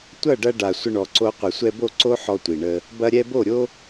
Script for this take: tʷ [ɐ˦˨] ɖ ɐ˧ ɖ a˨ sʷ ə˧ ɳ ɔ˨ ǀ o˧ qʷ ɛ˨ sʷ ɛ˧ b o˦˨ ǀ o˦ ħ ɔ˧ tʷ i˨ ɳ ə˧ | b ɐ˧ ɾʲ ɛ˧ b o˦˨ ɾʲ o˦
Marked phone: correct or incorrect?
correct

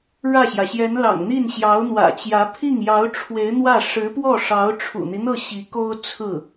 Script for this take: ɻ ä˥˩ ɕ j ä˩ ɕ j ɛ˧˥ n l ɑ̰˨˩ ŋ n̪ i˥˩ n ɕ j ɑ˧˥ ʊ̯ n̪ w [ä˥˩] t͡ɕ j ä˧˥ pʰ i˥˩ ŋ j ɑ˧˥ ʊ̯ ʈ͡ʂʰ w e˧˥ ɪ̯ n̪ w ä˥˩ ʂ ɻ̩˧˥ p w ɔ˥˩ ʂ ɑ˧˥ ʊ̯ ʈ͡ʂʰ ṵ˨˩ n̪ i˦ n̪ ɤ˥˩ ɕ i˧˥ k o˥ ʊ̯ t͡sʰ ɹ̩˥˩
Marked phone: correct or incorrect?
incorrect: ä̰˨˩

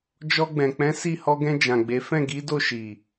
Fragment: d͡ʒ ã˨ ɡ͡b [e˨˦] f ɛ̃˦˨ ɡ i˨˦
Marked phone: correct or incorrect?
correct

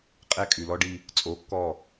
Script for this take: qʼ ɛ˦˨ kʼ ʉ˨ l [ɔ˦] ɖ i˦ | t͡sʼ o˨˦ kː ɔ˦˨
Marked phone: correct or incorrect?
correct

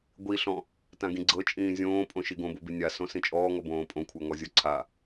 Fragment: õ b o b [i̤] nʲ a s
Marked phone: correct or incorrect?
incorrect: i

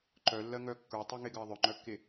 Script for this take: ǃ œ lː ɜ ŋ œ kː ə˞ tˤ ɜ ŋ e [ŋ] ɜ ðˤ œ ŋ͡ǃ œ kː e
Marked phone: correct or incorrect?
incorrect: ɡ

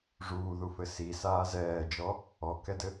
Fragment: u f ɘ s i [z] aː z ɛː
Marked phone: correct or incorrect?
incorrect: s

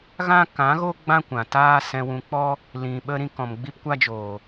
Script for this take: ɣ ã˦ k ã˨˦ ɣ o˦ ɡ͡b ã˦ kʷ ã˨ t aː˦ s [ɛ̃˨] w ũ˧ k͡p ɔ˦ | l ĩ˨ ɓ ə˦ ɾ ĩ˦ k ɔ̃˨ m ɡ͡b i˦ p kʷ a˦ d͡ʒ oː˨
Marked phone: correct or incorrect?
incorrect: ɛ̃˧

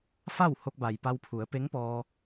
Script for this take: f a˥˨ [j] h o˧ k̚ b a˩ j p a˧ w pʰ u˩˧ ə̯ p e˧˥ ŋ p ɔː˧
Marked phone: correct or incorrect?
incorrect: w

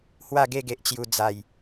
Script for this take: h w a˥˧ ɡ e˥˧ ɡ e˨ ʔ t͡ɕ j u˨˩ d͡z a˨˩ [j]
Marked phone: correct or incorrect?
correct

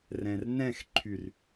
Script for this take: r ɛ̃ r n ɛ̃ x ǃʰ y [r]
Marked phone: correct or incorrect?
correct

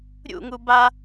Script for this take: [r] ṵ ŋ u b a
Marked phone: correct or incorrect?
incorrect: ɾʲ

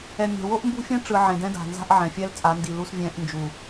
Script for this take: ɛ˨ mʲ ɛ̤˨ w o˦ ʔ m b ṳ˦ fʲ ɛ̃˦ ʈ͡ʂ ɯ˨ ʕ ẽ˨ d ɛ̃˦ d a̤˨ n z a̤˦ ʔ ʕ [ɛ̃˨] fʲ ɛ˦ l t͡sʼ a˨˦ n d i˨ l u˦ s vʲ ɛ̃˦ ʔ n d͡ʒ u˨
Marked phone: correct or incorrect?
correct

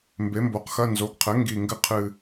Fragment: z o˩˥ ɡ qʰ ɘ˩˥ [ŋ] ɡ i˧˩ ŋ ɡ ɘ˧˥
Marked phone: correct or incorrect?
correct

